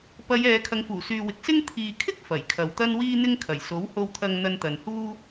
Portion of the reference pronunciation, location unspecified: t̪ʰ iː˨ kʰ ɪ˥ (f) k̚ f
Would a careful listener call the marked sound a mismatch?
yes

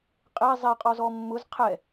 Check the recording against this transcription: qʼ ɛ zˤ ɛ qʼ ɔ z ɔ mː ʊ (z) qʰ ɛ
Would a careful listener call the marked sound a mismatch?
no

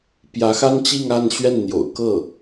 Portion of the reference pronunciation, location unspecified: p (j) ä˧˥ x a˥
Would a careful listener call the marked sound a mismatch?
no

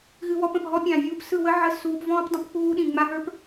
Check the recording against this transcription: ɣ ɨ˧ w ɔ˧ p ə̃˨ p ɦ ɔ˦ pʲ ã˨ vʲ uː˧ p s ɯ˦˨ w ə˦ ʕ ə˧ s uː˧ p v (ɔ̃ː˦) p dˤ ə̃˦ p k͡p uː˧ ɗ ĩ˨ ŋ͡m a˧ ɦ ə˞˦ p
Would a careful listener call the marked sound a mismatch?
no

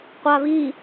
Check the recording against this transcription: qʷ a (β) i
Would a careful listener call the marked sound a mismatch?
no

